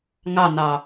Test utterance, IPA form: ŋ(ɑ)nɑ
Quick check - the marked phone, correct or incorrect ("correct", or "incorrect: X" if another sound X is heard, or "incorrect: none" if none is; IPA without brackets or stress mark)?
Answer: correct